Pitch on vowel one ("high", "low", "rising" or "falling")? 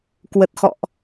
low